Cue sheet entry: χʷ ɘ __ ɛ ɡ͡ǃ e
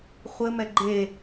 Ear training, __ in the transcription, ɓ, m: m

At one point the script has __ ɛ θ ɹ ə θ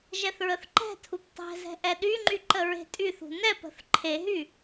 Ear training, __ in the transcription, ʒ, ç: ʒ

